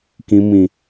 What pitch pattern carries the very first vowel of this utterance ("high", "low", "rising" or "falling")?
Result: low